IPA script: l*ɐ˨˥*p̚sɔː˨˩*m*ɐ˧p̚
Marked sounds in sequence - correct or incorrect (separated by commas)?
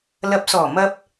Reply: correct, correct